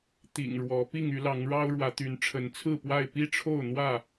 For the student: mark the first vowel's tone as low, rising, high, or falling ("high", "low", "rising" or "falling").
low